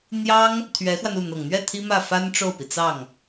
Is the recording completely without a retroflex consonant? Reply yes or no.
no